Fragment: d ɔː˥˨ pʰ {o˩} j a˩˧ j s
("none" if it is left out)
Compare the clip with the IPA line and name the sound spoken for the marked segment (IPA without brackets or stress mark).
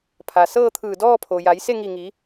o˩